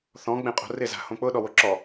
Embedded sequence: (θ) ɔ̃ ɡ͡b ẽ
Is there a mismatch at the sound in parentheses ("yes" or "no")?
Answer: no